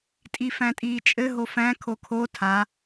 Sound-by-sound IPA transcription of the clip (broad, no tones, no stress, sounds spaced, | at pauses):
tʼ i f æ̃ tʼ iː t͡ʃʼ ɘ ɦ o f æ̃ kʰ o kʰ o tʰ a